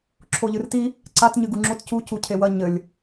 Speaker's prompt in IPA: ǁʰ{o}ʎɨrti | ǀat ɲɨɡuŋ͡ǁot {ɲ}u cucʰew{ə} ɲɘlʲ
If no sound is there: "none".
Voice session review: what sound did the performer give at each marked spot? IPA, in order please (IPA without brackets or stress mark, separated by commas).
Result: o, c, ɐ